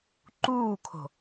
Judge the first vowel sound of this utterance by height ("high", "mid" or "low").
high